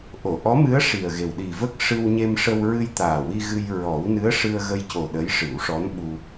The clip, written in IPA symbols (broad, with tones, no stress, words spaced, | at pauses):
ʔo˨˩˨ʔɔ˧˥mɨ˧˥ə̯ ʂi˨˩ə̯ɣe˨˩w ɗi˨˩və˦˥k̚ ʂɨ˧wɲe˧mʂə˧w ɹɨ˧jt̪aː˨˩wi˧ ɣɨ˧j ɹɔ˨˩˦w nɨ˧˥ə̯ʂɨ˧ə̯ɣə˧j co˨˩ ɗə˧˥jʂɨ˨˩˦wʂɔ˧˥n ɓu˧